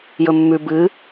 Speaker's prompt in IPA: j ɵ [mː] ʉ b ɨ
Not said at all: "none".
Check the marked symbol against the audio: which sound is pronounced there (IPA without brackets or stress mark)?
mː